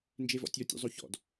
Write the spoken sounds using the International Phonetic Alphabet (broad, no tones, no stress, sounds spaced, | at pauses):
n d͡ʒ e v ɔ̰ tʲ ɔ tʲ ṵ zˤ o ç ɔ̰ d